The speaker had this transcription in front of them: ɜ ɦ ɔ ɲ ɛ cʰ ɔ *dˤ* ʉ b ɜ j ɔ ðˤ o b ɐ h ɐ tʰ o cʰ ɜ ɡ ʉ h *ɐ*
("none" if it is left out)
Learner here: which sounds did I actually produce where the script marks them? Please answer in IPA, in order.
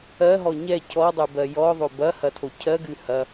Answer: dˤ, ɐ

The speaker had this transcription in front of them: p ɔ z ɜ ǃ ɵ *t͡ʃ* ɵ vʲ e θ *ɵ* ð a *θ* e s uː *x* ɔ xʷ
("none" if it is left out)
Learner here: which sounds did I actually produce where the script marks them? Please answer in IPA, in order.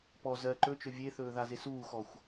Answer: t͡ʃ, ɵː, z, x

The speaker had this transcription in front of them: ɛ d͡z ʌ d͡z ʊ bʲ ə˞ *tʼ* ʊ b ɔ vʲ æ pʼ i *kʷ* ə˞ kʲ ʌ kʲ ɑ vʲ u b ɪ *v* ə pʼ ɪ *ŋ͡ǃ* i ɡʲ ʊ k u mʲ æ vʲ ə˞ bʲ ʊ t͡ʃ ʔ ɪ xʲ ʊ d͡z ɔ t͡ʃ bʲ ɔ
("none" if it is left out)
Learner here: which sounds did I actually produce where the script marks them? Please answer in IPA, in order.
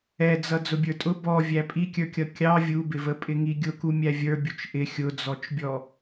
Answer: tʼ, kʲ, v, ŋ

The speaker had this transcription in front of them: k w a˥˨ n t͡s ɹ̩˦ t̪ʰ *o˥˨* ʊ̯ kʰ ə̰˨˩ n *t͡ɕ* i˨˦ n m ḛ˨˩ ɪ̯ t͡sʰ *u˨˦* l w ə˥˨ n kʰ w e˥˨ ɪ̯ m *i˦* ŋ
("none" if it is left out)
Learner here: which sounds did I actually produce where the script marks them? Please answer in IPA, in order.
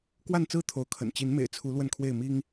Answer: o˨˦, t͡ɕ, u˨˦, i˦

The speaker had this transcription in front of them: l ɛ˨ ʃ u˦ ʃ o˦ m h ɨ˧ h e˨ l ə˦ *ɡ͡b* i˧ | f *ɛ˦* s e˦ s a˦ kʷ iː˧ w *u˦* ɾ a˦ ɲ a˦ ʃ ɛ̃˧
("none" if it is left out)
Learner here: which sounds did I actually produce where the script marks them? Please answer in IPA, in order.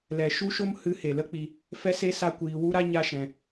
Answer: k͡p, ɛ˦, u˦

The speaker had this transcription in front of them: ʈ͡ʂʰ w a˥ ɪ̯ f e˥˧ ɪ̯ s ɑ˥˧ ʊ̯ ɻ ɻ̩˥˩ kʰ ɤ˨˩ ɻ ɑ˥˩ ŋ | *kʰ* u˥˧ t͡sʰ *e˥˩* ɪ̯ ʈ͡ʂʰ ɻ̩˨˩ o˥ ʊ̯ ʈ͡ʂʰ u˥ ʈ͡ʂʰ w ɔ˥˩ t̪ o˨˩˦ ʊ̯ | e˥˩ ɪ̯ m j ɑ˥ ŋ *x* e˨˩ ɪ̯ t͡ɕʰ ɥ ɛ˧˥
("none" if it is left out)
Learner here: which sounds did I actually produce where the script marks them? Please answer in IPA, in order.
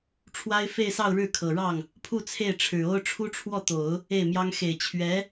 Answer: pʰ, e˥˩, x

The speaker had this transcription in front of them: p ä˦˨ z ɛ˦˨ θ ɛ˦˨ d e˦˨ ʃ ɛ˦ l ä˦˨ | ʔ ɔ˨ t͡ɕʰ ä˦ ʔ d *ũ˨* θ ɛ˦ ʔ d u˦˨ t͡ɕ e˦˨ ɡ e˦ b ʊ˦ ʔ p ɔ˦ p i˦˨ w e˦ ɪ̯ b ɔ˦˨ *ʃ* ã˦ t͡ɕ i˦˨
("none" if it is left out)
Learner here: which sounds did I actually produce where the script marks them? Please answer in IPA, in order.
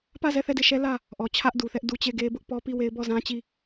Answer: u˨, z

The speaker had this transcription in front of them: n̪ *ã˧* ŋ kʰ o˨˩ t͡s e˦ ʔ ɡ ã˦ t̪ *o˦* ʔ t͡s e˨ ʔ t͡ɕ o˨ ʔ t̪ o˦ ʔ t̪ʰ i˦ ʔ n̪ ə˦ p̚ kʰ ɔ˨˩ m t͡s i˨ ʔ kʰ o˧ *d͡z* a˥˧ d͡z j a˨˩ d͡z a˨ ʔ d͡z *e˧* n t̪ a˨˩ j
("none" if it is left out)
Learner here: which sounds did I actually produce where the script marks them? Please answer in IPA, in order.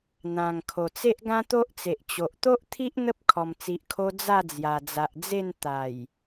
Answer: ã˨˩, o˦, d͡z, e˥˧

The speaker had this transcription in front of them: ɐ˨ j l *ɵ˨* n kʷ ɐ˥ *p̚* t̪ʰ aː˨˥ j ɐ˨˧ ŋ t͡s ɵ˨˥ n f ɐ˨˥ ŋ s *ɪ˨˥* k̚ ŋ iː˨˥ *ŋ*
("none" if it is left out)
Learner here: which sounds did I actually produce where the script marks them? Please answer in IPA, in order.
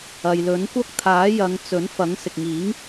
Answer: ɵ˨˥, k̚, ɪ˨, ŋ

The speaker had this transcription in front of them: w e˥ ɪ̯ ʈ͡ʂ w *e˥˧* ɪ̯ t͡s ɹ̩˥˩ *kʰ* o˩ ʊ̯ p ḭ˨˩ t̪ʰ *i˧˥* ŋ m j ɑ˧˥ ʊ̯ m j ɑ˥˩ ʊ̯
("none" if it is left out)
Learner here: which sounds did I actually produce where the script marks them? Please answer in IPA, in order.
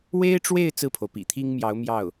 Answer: e˥˧, pʰ, i˥

